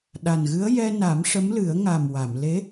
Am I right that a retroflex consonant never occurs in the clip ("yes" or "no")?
no